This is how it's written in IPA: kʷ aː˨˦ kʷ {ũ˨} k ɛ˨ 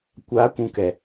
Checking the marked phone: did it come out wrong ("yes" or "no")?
no